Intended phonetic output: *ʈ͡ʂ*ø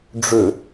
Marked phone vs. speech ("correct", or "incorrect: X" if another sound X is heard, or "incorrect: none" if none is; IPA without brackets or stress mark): incorrect: ɖ͡ʐ